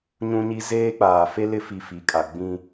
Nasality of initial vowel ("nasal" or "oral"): nasal